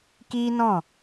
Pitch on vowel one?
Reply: high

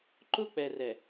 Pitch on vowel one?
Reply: high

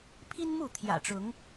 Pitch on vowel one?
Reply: high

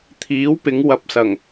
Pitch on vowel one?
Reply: rising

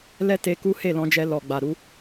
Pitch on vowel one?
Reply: high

